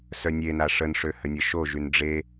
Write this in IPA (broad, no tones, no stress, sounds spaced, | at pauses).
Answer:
s œ nʲ e n a ʂ ə n ʂ ø h ə nʲ ə ʃ o ʒ y n ɖ͡ʐ e